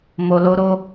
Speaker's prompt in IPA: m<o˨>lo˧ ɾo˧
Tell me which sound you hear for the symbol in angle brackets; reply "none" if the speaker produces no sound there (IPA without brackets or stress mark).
o˨